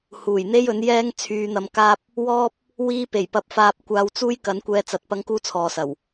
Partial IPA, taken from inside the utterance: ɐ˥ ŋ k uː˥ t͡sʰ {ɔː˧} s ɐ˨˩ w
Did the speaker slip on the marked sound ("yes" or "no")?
yes